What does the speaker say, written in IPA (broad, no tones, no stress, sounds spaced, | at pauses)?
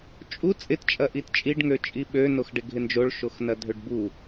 t͡ʃʼ u t͡sʼ ɪ t t͡ʃʼ ɐ ʔ i t t͡ʃʼ i ɖ ŋ ø t͡ʃʼ i ɓ ø n o x ɖ ɪ ɡʱ ɪ n d͡ʒ o ɭ ʃ o x n ɐ dʱ ø ɖ b u